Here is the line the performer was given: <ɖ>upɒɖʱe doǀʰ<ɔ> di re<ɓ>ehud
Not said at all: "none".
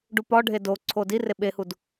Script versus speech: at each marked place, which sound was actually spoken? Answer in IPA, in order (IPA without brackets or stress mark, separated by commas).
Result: ɖ, o, ɓ